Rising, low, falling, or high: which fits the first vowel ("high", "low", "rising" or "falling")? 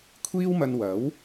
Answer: high